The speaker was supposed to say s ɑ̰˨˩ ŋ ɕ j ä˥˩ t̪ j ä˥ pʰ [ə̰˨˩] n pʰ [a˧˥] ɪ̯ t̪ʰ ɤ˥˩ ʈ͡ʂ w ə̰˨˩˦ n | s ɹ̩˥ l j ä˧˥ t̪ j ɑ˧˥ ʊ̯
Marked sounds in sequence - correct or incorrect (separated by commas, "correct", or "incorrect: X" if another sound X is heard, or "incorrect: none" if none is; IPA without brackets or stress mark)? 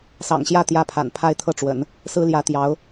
incorrect: a̰˨˩, incorrect: a˥˧